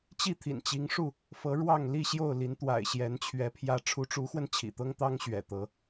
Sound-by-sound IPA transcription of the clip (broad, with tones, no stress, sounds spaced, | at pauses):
t͡ɕ i˥˨ t̪ʰ ḭ˨˩ n t͡ɕ i˨˦ ŋ ʂ u˥˨ | f ɤ˨˦ ɻ w ɑ˥˨ ŋ l i˥˨ ɕ j o˥˨ ʊ̯ l i˨˦ n t̪ w a̰˨˩ ɪ̯ ɕ j ɛ˨˦ n t͡ɕʰ ɥ ɛ˨˦ pʰ j ä˨˦ ʈ͡ʂʰ u˨˦ ʈ͡ʂ u˨˦ x w ə˧ n t͡ɕʰ ḭ˨˩ t̪ ɤ˦ ŋ t̪ ɑ˦ ŋ ɕ ɥ ɛ̰˨˩ t̪ ɤ˨˦